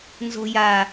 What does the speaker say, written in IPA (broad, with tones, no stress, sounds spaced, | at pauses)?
n z o̤˧ j a˨˩